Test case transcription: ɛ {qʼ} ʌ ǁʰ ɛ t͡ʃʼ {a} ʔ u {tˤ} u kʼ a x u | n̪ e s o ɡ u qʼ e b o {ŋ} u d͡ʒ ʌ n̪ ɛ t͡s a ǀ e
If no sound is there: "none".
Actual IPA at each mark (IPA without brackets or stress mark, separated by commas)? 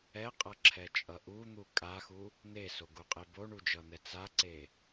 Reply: qʼ, ʌ, n̪, ɳ